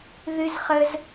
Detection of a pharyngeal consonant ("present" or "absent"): absent